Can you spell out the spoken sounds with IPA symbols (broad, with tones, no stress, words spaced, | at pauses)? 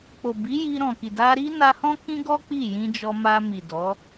k͡po˨bi˨˦ ji˧ɾɔ̃˨ki˨ da˧ɾi˦na˧hɔ̃˦ kĩ˦ɡɔ˦ k͡pi˦˨jĩ˧d͡ʒɔ˧ma˧ mi˨dɔ˨˦